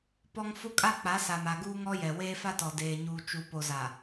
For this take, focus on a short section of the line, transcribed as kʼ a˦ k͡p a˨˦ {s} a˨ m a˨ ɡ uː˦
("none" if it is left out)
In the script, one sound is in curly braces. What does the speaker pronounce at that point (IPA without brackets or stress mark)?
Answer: s